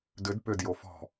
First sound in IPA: d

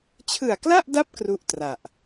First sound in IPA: t͡ɕʰ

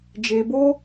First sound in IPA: d͡ʒ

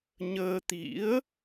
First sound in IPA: ɲ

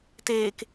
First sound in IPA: t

